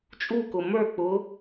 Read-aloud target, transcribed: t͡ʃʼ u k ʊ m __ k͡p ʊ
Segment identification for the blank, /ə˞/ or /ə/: ə˞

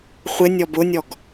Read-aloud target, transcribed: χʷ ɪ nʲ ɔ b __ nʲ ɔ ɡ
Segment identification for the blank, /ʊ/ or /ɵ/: ʊ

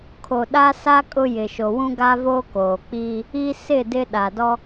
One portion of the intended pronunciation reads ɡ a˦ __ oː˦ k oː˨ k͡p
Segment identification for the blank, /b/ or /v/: v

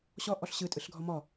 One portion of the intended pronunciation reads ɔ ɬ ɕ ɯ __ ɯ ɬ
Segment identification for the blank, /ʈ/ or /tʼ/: tʼ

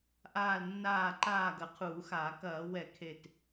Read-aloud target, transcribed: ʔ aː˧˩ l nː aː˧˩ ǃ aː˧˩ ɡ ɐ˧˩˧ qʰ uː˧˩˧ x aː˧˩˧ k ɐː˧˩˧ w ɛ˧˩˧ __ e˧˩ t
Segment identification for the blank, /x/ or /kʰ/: kʰ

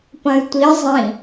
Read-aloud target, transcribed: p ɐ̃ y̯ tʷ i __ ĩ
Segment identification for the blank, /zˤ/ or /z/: zˤ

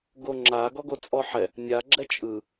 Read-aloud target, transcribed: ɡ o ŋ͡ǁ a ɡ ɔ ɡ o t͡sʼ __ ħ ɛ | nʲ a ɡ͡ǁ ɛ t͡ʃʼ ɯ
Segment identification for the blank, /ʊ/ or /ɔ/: ɔ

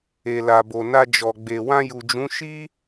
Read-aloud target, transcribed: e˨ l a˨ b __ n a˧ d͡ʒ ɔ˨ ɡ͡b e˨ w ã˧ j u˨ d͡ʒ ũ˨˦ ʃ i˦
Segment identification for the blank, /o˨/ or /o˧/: o˨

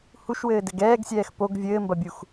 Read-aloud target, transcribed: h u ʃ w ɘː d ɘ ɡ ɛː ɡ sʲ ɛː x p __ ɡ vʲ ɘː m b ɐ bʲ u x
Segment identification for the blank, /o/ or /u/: o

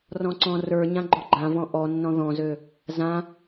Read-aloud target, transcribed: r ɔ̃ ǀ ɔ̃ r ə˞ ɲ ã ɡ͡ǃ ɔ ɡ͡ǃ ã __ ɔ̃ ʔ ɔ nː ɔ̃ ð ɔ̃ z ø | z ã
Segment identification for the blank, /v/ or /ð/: v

